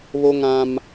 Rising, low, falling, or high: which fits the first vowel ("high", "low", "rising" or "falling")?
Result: high